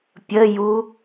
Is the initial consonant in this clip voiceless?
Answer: yes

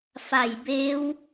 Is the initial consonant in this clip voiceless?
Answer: yes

